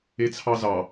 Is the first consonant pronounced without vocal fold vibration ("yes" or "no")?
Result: yes